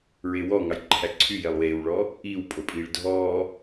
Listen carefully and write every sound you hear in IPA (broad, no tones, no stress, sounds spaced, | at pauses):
ɹ e w ɔ ŋ ɑ j ǃʰ æ ǀʰ y j e lˠ w eː w ɭ ɔː | ʔ iː w pʼ o pʼ iː ɭ dʱ ɔː